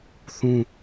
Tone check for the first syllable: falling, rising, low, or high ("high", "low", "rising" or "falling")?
high